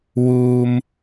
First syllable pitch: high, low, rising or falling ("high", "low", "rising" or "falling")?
low